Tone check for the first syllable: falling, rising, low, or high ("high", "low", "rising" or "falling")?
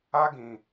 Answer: high